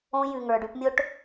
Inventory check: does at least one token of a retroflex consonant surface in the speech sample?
yes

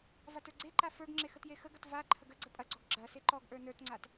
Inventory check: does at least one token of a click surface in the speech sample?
yes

